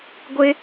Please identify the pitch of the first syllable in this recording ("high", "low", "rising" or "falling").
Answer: high